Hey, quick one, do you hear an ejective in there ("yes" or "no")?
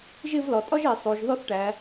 yes